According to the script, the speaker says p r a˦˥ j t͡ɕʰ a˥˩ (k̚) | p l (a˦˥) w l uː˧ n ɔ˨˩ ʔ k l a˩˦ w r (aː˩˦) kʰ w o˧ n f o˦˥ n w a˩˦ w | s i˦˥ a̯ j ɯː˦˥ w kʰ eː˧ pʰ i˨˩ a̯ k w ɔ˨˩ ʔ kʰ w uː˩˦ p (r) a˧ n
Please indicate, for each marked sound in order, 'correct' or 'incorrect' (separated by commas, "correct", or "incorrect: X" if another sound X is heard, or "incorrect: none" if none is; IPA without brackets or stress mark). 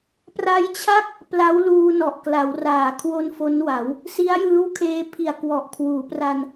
correct, correct, correct, correct